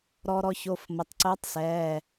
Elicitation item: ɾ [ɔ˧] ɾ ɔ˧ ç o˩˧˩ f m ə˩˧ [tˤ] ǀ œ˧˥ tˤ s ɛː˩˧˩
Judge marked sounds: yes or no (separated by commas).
no, yes